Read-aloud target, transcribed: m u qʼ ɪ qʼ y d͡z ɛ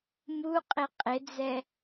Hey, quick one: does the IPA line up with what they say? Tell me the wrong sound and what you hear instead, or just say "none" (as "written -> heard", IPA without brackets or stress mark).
y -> ɪ